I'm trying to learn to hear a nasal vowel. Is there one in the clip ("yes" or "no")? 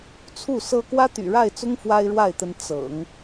no